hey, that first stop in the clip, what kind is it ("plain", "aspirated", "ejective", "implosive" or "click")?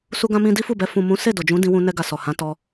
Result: plain